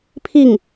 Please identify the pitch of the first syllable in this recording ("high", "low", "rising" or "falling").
falling